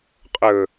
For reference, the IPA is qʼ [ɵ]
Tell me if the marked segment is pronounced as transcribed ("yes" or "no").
yes